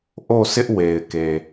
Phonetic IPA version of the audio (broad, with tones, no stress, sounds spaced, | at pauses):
ʔ o˦˨ s ɪ˦ ʔ w e˨ ɪ̯ k e˨